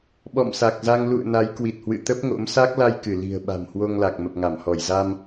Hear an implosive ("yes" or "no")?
yes